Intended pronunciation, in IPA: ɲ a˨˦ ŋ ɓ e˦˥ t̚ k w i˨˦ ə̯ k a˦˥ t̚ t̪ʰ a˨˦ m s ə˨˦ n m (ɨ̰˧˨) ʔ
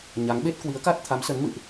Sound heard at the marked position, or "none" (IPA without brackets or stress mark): ɨ̰˧˨